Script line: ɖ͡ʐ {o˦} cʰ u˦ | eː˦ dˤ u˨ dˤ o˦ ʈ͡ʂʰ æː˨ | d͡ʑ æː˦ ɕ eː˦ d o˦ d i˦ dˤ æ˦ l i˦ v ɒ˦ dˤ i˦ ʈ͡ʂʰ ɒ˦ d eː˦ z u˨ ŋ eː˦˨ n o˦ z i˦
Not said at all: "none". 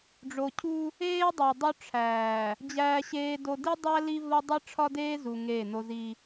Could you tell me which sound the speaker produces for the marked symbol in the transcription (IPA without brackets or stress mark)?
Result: o˨